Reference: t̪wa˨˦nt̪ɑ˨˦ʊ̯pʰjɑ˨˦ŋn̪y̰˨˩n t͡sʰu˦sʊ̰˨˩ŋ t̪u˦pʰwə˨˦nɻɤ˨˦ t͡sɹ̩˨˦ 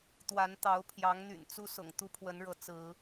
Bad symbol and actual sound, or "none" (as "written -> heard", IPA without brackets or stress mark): t͡sʰ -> t͡s